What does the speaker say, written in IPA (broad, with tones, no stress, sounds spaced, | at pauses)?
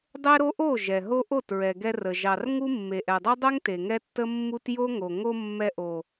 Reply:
dˤ e˦ ɾ o˦ ʔ o˦˨ ʒ ɛ˨ ɦ o˦ ʔ o˦˨ t ɹ ɛ˨ ɡ ɛ˧ r ə˨ ʒ ɑ˨ r ŋ u˦ mː e˨ ʔ ɛ˨ dˤ o˦ dˤ ɛ˦ ŋ t e˨ ŋ ɛ˦ tː ə˦ mː u˦ t j o˦ ŋ o˨ ŋ o˧ mː ɛ˧ ʔ o˨